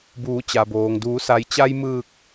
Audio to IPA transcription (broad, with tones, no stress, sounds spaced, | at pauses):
b uː˩˧ t͡ɕ a˩ b oː˩ ŋ d uː˩˧ s a˩ j t͡ɕ a˧ j m ɯː˧˩ k̚